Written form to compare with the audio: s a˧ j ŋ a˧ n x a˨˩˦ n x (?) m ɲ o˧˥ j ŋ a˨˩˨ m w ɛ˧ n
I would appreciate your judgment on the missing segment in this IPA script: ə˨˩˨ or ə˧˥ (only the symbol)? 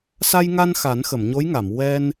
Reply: ə˨˩˨